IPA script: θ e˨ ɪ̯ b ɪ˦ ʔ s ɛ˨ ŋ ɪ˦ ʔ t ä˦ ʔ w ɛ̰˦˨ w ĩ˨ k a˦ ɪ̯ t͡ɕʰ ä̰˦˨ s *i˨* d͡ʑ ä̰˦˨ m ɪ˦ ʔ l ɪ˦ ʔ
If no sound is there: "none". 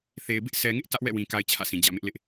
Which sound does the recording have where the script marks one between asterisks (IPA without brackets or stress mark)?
ĩ˨